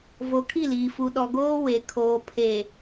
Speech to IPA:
v o˨ kʰ i˦˨ l iː˨ f u˨ ɗ ɔ˨ ɡ oː˦ w e˨ kʰ oː˨ pʰ e˨

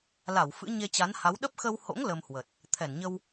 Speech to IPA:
l a˧˩ w f ɨ̰˧˥ ɲ e˧ t͡ɕ a˨˦ n h a˨˦ w ɗ ə˦˥ p̚ x ə˧ w h o̰˧˥ ŋ l ə˧ m h w ə˨˩ t̚ | t̪ʰ ɛ˧˩ n ɲ ə˧ w

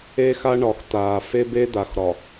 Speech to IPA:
eː˦ x a˦ ɳ ɒ˨ x t̪ aː˨ f e˦ b e˦ d̪ a˨ x ɾ ɒ˨

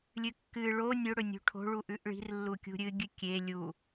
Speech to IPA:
lʲ ɨ kː ɨ ɭ o nʲ ɵ ɽ ɵ nʲ ṳ ʈʰ o̤ ɭ u ʔ ʉ ʔ ɭ i̤ r lː u kʲ ṳ ɾʲ ɨ ɡʲ ɨ kʲ e lʲ u

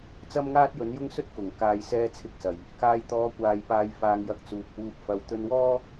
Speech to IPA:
t͡s ɐ˥ m ŋ aː˥ t̚ j ɵ˨˥ n j ʊ˥ ŋ s ɵ˥ t̚ k ʊ˨˩ ŋ k aː˨ j s ɛː˧ t͡sʰ ɪ˨˥ k̚ s ɐ˨˩ j | k aː˧ j t̪ ɔː˧ kʷ aː˨ j p aː˨˧ j f aː˨ ŋ j ɐ˧ k̚ t͡s uː˨ k̚ w uː˧ p̚ f ɐ˧ w t̪ ɵ˧ n w ɔː˥

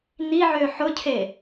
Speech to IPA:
n̪ i ʕ ø ħ ʊ cʰ e

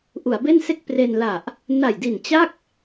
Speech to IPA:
ʔ u˩˦ a̯ b e˥˩ n s e˥˩ k̚ p r e˧ n l a˨˩ ʔ | n a˨˩ j d i˨˩ n t͡ɕ a˥˩ k̚

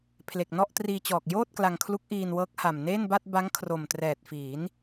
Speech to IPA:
pʰ l e˨˩ k̚ n ɔ˥˩ ʔ t r iː˧ t͡ɕ ɔː˨˩ k̚ j oː˥˩ t̚ k l a˧ ŋ kʰ l u˦˥ k̚ ʔ iː˧ n w ɤː˦˥ k̚ h a˨˩ m n eː˥˩ n b a˥˩ t̚ b a˦˥ ŋ kʰ r o˨˩ m t r ɛː˨˩ t̚ f iː˩˦ n

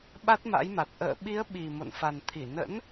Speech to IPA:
ɓ a˦˥ t̚ m a̰˧˥ j m a˨˩ t̚ ʔ ə̰ː˧˨ ɓ i˨˦ ə̯ ɓ i˨˩ m o̰˧˨ n f a˨˩ n t̪ʰ i˧˩ n ə̰˧˥ n

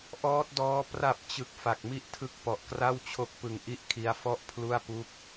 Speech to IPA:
ʔ ɔː˦˥ t̚ d ɔː˦˥ p r a˨˩ p̚ t͡ɕ ɯ˨˩ k̚ f a˨˩ k̚ m i˥˩ ʔ tʰ ɯ˦˥ k̚ p ɔ˨˩ ʔ k r a˥˩ w t͡ɕʰ o˦˥ k̚ p ɯ˧ ŋ ʔ i˥˩ ʔ kʰ i˦˥ a̯ f ɔ˥˩ ʔ pʰ l u˥˩ a̯ p u˥˩ k̚

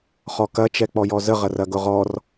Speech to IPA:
χ ɔ k ɐ t͡ʃ ɛ k͡p ɔ j ɔ z ə ʁ ɐ r ɐ ɡ ʊ ʁ ɔ r

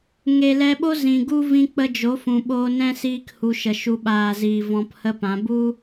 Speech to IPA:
ŋ e˨ l ɛ˧ ɓ o˦ z ĩ˨ ɡ u˦ v ĩ˧ k͡p ə˧ d͡ʒ o˨˦ f ũ˨ ɓ oː˧ n ɛ̃˦ s iː˦ k h u˧ ʃ ə˨ ʃ u˧ ɓ aː˨ z iː˨ v ɔ̃˧ p h ə˦ p ã˨˦ b u˦

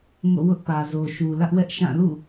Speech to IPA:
ŋ o̰˦˨ w ʊ˦ ʔ p ä˨ z o˨ ʃ u˨ l ä˦ ʔ w ɛ˦ ʔ ʃ ã˦˨ l ṵ˦˨

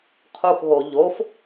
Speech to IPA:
qʰ u x ɦ o ʎ o f

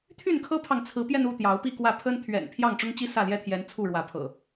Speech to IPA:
t̪ʰ y˥˨ n kʰ ɤ˦ pʰ ɑ˨ ŋ t͡sʰ ɹ̩˨˦ p j ɛ˧ n u˥˨ t̪ j ɑ˨˦ ʊ̯ p i˥˨ k w ä˥˨ pʰ ə˦ n t̪ʰ ɥ ɛ̰˨˩ n pʰ j ɑ˥˨ ŋ ʈ͡ʂ ʊ˦ ŋ t͡ɕ i˦ s ä˥˨ l j ɛ˦ t̪ʰ j ɛ˨˦ n t͡sʰ u˥˨ ɻ w ä˨˦ pʰ ɤ̰˨˩

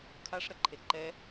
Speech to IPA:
kʰ a ʂ ɾ ʌ ǃʰ e d ǃ ɛ

